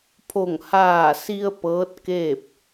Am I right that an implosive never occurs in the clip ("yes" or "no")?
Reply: yes